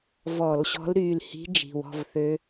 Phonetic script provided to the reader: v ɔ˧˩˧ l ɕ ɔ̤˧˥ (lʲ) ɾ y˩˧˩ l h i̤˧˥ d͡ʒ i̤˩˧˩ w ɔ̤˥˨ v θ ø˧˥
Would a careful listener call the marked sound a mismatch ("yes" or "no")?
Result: yes